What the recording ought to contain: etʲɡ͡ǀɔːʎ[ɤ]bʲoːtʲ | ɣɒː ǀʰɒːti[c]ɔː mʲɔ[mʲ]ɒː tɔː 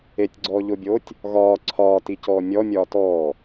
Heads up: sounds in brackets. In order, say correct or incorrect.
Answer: incorrect: o, correct, correct

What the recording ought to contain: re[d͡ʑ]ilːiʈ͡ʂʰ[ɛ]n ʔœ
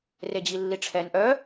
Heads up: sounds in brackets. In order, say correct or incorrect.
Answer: correct, correct

